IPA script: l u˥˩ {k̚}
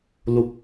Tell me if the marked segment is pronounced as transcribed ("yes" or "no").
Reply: yes